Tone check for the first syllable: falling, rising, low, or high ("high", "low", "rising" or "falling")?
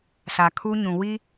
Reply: low